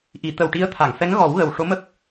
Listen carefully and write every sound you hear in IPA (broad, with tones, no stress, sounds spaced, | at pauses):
ʔ i˨˩˦ t̪ ə˨˩ w ʈ i˧˥ ə̯ t̪ʰ a˨˩˨ ŋ f ɛ˧˥ ŋ ɣ ɔ˨˩˦ w ɣ ə˨˩ w ʂ o˧˥ m ə˦˥ k̚